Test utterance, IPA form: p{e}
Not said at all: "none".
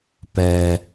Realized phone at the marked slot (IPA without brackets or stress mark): ɛ